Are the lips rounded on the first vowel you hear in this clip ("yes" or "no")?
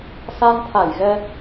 no